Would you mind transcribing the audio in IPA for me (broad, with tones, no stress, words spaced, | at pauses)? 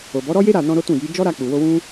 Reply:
o˨bɔ˨˦ɾɔ˦je˦ ɾa˦˨nɔ̃˧ ɾo˦tũ˦˨ji˨˦ d͡ʒɔ˦ɾa˧k͡pu˨wo˧ wũ˦